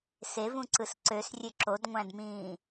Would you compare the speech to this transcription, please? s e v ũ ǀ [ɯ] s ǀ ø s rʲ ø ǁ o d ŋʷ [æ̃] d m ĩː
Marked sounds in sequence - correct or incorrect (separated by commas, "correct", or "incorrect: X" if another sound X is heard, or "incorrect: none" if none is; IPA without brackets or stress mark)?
correct, correct